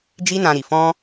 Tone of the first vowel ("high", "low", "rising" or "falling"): high